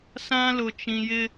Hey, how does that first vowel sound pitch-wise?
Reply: high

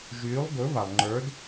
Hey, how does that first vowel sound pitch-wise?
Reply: rising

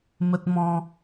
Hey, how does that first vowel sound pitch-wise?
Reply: high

